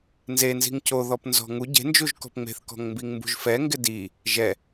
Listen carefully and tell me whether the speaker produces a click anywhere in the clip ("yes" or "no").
no